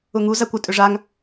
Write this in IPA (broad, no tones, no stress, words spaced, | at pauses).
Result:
ʊŋu zakʷʊ tʼʏʐaŋ